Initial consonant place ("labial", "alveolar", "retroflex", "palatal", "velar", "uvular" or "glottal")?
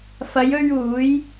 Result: labial